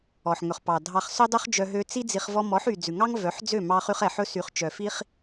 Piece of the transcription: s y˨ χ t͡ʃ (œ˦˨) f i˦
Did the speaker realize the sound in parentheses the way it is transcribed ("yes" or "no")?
no